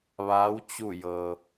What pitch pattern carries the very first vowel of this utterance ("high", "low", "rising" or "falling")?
rising